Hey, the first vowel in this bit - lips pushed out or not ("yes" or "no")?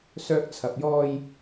yes